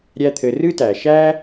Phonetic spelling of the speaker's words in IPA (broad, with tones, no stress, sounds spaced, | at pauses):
ɾʲ æ˦ t̪ʰ ɘ˨ r ɨ˥ t æ˩ ʃ æ˥